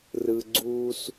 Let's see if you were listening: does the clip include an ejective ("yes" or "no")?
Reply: no